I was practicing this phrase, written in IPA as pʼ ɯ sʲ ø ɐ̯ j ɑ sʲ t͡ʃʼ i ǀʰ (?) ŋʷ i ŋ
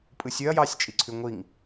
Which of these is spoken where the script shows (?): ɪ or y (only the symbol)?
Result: y